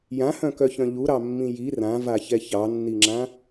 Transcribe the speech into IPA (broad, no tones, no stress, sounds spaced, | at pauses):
j ã h œ̃ k œ ç œ̃ ʎ u ɾ ɑ mː ĩ j i r ã v a ç ɛ ç ɑ nː i ŋ͡ǁ ã